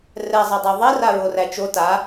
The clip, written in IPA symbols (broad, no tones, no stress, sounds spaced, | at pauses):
r ɛ zˤ ɛ dˤ o ðˤ i r a ɹ o r æ t͡ʃ o t a